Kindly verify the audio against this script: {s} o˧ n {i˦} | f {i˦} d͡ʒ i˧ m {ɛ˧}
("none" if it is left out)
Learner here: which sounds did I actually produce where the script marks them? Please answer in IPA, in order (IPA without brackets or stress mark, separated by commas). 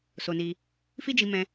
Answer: s, i˧, i˦, ɛ̃˧